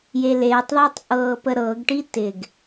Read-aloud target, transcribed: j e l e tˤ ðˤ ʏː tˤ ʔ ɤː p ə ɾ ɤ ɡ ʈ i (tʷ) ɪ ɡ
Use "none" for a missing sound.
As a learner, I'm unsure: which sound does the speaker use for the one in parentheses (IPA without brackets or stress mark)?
t